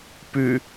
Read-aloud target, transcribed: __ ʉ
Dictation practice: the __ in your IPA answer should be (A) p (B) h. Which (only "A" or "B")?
A